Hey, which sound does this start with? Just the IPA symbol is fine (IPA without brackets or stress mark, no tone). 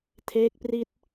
tʰ